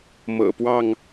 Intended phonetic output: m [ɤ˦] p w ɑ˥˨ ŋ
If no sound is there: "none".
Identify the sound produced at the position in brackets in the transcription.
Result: ɤ̰˨˩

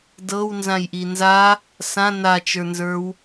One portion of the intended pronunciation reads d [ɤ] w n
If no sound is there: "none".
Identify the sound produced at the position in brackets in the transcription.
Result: ɤ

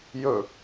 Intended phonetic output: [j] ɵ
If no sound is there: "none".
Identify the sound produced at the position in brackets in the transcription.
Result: j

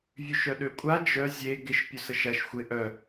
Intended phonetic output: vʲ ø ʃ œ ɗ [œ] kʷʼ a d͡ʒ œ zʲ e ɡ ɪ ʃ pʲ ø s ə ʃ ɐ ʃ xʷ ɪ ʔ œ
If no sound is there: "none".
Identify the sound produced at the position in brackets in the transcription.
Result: ø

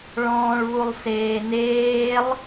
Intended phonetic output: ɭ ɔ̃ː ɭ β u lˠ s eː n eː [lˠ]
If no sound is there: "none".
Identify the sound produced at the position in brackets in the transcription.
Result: lˠ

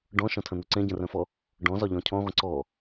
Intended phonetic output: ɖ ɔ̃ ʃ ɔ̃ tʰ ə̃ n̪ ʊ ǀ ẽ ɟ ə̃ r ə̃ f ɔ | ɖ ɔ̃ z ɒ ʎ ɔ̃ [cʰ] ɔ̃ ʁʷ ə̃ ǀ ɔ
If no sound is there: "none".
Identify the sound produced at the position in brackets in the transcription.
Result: cʰ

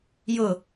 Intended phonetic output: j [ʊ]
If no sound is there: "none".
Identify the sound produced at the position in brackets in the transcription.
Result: ʊ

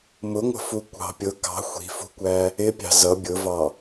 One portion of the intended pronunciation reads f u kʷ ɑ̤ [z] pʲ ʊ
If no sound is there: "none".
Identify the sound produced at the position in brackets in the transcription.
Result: none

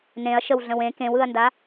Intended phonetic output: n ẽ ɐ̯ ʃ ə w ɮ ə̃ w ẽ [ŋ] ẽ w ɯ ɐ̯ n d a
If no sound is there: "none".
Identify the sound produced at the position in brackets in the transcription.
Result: k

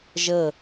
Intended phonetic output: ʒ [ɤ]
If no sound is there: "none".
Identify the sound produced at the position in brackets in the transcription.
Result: ɤ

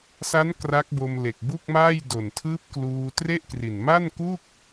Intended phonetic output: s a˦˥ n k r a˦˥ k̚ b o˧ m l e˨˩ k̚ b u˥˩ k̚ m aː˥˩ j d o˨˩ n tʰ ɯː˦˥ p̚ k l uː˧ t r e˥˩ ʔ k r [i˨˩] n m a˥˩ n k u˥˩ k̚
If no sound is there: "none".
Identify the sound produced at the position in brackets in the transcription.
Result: i˨˩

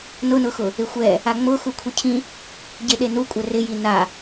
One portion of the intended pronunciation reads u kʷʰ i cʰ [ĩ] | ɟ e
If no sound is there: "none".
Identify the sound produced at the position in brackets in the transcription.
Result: ĩ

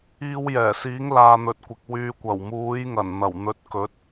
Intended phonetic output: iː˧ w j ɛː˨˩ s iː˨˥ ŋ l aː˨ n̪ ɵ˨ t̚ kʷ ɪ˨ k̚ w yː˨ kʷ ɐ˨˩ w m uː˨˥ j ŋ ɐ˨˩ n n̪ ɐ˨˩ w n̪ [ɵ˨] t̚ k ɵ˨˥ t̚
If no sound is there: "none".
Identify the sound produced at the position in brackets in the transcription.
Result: ɵ˨˥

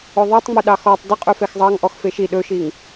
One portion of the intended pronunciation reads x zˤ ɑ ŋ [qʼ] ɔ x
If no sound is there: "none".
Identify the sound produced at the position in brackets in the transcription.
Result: ʔ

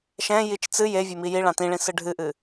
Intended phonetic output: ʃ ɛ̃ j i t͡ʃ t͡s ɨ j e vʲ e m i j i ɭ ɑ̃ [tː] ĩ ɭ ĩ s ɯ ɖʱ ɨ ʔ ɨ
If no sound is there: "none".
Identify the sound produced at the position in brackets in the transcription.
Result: t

